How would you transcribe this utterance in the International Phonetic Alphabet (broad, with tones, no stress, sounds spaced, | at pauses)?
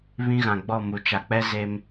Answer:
β ĩ˦ ɣ ã˨ ɡ͡b ɔ˦˨ m u˨ t͡ʃ a˨ k͡p ɛ˦ z e˦ m